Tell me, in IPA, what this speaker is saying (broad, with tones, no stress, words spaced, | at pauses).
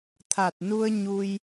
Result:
t̪ʰa˨˩t̚nu˧ə̯ ɲu˧j